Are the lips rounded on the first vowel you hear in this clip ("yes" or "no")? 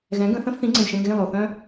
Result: no